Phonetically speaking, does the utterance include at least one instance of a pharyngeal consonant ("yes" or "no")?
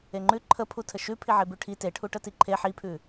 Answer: yes